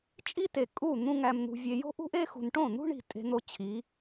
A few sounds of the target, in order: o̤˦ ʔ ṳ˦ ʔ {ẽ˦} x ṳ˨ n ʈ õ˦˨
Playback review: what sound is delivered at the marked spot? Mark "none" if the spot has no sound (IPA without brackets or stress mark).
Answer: e˦